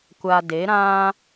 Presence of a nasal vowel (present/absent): present